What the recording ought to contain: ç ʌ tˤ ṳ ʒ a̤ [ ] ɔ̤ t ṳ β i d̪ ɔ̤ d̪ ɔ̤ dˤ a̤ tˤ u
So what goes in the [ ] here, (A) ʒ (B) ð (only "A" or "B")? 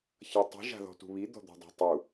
B